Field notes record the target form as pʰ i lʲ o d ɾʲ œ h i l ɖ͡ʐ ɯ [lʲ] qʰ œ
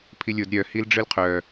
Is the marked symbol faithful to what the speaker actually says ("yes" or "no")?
no